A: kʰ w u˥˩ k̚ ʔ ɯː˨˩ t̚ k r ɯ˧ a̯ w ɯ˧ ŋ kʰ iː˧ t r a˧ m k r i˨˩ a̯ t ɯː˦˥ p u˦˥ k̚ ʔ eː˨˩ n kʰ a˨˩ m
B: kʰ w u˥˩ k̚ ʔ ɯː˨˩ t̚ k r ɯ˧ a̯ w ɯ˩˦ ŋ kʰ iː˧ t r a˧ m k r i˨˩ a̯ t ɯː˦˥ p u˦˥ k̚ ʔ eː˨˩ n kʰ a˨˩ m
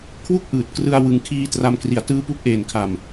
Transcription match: B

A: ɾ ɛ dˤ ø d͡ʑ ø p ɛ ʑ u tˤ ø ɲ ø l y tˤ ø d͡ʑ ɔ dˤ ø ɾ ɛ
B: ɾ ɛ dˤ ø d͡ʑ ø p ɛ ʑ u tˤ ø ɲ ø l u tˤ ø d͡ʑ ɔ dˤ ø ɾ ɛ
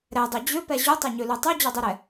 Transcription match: B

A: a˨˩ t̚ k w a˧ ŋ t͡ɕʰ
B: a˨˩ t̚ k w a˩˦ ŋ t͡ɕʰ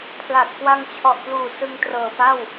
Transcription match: A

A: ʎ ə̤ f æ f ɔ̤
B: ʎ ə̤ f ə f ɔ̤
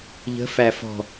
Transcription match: A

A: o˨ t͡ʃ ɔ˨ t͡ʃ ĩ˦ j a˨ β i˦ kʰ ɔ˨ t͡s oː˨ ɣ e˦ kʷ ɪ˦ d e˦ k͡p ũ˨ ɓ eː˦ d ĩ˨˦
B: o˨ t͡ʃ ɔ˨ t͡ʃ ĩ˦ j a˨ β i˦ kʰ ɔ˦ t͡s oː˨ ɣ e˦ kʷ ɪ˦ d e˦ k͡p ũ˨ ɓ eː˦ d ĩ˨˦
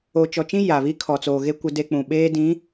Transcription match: A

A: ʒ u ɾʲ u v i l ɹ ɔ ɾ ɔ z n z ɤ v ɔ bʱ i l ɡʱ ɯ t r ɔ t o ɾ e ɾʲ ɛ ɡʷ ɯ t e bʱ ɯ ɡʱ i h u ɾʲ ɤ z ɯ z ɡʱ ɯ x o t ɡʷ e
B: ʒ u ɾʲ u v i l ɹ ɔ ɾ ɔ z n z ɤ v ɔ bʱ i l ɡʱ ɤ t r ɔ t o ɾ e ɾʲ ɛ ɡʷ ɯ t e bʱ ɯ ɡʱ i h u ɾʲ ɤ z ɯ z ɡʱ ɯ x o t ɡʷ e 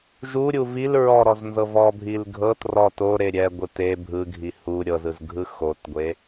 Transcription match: B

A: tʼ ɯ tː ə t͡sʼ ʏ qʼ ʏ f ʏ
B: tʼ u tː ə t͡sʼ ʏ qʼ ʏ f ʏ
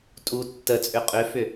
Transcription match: B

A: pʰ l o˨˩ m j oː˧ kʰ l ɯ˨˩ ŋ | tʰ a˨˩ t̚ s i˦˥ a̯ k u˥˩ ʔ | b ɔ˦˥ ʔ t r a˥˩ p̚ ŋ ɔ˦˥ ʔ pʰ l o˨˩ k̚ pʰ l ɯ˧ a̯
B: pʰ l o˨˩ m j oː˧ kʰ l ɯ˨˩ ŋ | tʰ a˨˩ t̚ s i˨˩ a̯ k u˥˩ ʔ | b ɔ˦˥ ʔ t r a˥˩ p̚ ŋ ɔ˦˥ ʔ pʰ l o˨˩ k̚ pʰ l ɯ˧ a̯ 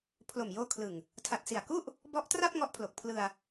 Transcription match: B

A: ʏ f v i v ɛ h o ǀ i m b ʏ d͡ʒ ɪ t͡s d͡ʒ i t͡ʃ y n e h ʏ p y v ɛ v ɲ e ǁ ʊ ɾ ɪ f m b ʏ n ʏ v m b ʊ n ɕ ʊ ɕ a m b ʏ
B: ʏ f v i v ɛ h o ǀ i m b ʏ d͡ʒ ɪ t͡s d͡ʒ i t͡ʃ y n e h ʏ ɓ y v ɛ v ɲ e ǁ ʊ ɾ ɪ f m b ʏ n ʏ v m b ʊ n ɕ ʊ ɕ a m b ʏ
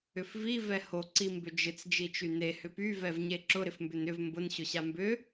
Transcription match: A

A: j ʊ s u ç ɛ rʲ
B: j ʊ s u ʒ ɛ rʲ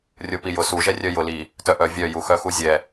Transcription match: B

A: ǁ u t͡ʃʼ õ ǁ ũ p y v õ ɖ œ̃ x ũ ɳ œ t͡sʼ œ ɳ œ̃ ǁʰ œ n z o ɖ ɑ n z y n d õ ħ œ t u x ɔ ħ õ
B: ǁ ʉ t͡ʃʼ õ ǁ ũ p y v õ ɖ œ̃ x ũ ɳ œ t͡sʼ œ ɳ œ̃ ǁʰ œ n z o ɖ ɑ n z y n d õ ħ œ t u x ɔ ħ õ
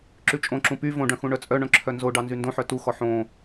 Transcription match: B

